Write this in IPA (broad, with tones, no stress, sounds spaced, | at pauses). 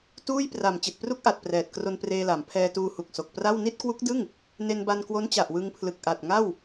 t uː˥˩ j p r a˨˩ m t͡ɕ i˨˩ t̚ p r u˥˩ k̚ ʔ a˨˩ t̚ p r ɛː˨˩ t̚ k r o˧ n p r eː˧ l a˩˦ m pʰ ɛː˧ t uː˧ h u˨˩ k̚ s o˨˩ k̚ p r a˥˩ w n i˥˩ t̚ k w u˦˥ k̚ d ɯ˥˩ ŋ | n e˧ n b a˧ n k w o˦˥ n t͡ɕ a˨˩ ʔ w ɯ˧ ŋ pʰ l ɯ˨˩ k̚ ʔ a˨˩ t̚ ŋ a˥˩ w